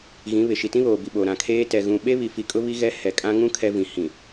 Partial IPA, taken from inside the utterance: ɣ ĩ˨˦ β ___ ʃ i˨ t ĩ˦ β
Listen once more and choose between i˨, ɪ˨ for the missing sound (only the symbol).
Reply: ɪ˨